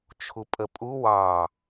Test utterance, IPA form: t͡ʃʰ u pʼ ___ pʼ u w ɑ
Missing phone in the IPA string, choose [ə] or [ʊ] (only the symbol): ə